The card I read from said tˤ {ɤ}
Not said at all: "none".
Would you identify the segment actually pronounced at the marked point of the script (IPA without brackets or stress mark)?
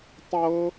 ɤ